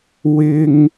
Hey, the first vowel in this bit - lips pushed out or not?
no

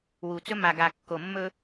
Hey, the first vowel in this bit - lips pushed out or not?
yes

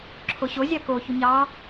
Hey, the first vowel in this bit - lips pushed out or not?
yes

